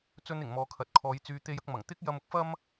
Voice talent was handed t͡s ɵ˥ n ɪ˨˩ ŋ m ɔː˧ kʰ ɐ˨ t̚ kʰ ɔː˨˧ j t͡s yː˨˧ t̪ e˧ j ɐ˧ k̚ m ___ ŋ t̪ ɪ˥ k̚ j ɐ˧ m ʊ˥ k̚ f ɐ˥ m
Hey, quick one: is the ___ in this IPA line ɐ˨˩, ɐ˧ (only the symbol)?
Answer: ɐ˨˩